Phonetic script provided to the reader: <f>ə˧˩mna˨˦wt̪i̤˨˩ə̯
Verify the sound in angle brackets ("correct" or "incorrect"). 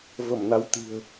incorrect